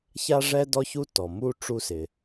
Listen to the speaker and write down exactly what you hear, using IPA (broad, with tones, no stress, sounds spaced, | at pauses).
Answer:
ç a˥ ʐ ɛ˥ d ɔ˥ ç u˥ t ɔ˩ m u˥ ʈ͡ʂ u˥ s ɪ˩